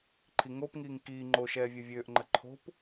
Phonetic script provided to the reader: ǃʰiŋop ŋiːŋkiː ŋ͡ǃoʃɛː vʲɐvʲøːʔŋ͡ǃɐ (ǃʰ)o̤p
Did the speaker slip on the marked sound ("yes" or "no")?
no